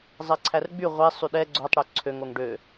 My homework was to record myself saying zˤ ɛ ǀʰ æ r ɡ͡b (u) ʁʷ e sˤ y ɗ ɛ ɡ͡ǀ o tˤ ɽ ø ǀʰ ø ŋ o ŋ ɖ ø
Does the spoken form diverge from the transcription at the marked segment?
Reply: yes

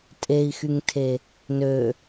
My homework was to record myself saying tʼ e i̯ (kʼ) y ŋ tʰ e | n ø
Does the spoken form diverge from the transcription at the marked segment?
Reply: yes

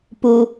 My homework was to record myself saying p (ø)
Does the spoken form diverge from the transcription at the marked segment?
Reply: yes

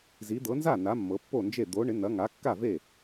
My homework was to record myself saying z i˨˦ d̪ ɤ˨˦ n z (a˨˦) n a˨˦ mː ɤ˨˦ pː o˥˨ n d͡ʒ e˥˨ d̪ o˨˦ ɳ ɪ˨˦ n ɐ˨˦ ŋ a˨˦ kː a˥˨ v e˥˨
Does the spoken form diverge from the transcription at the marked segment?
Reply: yes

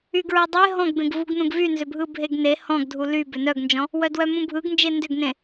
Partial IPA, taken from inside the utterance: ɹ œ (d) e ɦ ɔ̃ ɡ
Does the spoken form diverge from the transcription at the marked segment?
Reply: yes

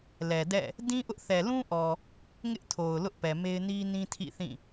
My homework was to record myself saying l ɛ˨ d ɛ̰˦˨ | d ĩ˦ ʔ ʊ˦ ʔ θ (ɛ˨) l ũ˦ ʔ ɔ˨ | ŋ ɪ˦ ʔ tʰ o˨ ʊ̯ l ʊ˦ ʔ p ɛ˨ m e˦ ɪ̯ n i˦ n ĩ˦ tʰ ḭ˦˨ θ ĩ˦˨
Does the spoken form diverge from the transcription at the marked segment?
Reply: no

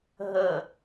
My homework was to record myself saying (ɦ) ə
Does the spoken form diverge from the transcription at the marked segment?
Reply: no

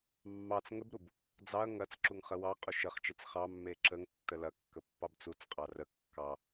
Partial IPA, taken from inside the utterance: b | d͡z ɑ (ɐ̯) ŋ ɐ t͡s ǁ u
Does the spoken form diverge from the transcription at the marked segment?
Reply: no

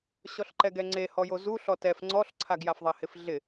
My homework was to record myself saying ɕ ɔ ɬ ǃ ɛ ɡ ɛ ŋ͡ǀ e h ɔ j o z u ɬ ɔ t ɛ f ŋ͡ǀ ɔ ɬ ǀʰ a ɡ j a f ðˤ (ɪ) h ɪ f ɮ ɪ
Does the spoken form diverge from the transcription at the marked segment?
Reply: yes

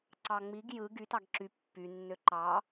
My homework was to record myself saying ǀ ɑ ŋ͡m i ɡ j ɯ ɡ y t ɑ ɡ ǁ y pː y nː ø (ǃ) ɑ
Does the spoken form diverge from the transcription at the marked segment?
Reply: no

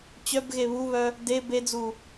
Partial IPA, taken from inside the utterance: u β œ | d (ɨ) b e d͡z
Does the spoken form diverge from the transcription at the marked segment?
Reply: yes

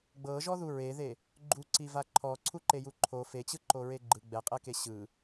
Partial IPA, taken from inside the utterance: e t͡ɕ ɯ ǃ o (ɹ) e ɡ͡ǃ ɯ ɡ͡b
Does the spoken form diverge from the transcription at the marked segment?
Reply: no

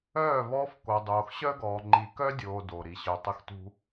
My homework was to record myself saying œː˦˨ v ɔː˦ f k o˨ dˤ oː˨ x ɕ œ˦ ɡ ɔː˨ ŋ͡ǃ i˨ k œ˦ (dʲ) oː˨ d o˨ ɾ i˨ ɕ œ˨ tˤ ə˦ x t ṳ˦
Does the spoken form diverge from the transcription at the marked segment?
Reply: no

